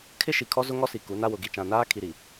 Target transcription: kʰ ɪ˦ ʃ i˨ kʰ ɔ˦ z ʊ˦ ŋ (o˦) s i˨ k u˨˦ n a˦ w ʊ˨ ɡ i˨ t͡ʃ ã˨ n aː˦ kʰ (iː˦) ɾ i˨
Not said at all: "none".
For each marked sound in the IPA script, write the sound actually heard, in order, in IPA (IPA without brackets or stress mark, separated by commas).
ɔ˦, i˦